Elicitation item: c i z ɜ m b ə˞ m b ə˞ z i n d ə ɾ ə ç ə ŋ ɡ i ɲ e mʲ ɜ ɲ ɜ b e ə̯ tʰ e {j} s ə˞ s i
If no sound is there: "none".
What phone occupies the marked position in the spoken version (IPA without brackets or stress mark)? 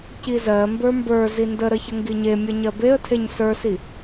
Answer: ɲ